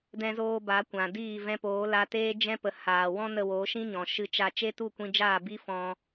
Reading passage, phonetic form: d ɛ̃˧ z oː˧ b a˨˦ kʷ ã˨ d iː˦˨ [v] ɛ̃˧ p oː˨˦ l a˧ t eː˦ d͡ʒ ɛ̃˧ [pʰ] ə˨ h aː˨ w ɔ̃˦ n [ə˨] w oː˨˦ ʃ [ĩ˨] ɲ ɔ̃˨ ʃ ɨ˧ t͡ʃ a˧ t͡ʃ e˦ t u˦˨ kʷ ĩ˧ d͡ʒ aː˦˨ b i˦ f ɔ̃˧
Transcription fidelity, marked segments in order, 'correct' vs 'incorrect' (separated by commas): correct, incorrect, incorrect, incorrect